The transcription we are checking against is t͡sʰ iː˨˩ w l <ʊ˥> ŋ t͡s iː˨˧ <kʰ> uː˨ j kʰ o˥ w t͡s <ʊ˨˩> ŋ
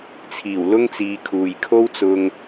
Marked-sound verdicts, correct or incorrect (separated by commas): correct, correct, incorrect